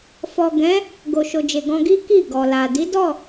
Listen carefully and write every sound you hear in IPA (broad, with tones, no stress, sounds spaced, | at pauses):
f ɔ˨ ɡ ɛ̃˨˦ | ɡ o˨ ʃ o˨ d͡ʒ e˨ ɡ ɔ̃˧ ɡ i˦ k i˦˨ ɡ ɔ˨ l a˨ d i˨˦ d ɔ˦˨